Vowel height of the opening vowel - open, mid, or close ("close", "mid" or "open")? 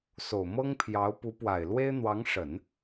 mid